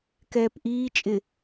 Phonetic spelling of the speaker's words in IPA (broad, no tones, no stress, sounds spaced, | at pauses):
k ɛː p ʔ iː t͡ʃʼ ɪ